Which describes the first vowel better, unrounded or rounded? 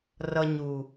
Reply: unrounded